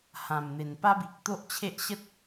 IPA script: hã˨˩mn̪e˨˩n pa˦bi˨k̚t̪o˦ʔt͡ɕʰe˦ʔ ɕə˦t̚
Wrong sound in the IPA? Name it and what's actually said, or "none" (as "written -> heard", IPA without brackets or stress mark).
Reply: none